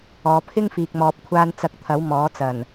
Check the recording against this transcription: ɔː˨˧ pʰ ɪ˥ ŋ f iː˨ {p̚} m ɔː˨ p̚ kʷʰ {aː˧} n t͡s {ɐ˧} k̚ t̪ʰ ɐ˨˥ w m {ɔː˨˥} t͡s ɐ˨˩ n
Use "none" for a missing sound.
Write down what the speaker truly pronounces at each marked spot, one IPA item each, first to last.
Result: k̚, aː˧, ɐ˧, ɔː˨˥

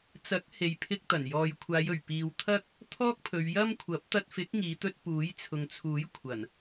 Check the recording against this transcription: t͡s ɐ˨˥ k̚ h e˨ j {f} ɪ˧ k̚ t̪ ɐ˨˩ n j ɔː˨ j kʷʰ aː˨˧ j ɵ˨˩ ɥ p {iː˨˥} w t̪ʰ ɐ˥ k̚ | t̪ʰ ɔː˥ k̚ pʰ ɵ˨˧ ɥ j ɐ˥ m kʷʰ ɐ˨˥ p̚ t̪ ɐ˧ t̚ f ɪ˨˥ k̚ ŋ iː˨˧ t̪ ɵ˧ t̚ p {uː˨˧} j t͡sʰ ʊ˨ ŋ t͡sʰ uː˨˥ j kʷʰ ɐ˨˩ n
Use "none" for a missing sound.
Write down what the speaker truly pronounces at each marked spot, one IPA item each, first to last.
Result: pʰ, iː˨, uː˨˥

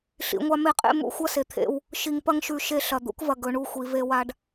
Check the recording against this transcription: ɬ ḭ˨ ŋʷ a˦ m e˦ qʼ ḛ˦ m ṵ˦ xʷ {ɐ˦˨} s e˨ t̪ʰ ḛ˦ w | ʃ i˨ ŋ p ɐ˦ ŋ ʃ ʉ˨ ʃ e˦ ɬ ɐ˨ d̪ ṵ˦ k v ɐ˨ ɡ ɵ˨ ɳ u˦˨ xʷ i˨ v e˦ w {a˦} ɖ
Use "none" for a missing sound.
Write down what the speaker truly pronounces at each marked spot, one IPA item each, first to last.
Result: ɐ˦, a˦

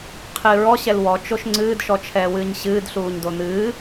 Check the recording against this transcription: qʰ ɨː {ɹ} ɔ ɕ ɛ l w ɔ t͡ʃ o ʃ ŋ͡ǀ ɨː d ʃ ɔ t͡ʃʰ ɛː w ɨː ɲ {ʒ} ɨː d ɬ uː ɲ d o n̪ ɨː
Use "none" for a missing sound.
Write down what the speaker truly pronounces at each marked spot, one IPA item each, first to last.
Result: ɹ, ɕ

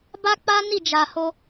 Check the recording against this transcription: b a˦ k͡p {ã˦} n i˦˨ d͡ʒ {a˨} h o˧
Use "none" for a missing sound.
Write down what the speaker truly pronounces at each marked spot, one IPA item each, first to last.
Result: a˦, a˨

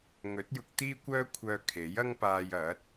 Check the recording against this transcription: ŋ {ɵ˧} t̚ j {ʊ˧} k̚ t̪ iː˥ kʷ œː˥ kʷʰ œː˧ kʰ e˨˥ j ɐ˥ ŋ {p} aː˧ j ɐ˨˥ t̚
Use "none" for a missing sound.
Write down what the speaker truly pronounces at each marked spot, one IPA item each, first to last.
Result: ɵ˨˥, ʊ˧, p

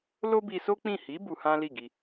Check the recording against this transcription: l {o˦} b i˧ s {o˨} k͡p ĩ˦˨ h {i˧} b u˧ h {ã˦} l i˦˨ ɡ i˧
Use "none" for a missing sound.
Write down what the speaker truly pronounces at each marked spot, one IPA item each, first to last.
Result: o˦, o˦, i˨˦, ã˦

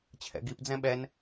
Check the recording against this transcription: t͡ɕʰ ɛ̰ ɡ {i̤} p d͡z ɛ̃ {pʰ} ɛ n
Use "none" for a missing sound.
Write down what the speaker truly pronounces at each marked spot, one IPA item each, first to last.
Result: i, ɓ

